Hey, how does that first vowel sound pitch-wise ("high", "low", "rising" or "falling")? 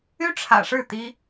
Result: high